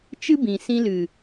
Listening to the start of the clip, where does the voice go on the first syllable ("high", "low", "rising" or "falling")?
high